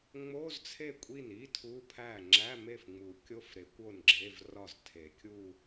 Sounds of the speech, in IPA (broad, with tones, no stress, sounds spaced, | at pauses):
ŋ͡m o˧˥˧ z t͡sʰ e˥˩ kʷʼ i˥˩ n i˧˥˧ tʰ u˧˥˧ pʰ æ˥˩ ŋ͡ǁ æ˧˥˧ m e˥˩ f ŋ͡m u˨˩˦ kʲ o˧˥˧ f ɾ e˨˩˦ kʷ o˥˩ n ɡ͡ǁ e˧˥˧ v r ɒ˥˩ z tʰ e˨˩˦ kʲ u˥˧